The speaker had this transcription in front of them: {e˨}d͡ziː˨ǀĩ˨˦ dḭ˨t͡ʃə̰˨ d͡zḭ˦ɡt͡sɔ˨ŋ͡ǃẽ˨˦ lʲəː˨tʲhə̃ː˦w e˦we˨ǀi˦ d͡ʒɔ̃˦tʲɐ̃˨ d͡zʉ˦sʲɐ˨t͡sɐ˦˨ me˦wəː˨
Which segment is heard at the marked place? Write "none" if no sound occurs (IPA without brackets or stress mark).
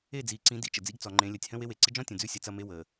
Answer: e˦˨